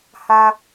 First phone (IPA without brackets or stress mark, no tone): h